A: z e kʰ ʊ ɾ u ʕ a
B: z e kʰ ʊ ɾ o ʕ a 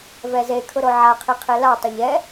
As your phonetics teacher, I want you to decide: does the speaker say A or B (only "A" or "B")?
B